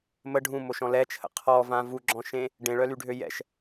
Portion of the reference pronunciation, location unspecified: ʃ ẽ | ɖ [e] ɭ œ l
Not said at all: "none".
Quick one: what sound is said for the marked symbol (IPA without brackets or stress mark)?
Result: ẽ